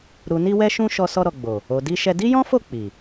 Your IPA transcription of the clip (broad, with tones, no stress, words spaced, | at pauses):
ɾu˨ni˧wɛ˧ʃũ˧ ʃɔ˧ sɔ˧ɾɔ˨ɡ͡bo˨ | o˨di˧ʃɛ˧ di˦jɔ̃˦fo˦˨ k͡pi˨